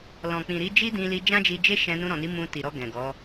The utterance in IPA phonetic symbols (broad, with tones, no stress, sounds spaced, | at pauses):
l ɔ̃˨ k͡p ĩ˨ ɾ i˨˦ d͡ʒ i˦ d ĩ˧ l i˧ d͡ʒ ã˦ d͡ʒ i˧ d͡ʒ e˦ ʃ ɛ̃˧ n ũ˧ ɾ ɔ̃˨ n i˨˦ m ũ˧ t i˨ ɾ ɔ˧ ɡ ɛ̃˨ ɡ ɔ˨˦